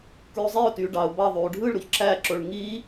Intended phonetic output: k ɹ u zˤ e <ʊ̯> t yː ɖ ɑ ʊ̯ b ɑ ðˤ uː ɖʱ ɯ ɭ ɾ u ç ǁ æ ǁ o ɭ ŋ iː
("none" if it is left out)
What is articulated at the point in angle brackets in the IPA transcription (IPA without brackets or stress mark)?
ʊ̯